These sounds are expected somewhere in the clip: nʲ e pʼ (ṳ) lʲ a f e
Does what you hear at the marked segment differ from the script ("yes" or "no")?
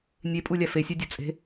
yes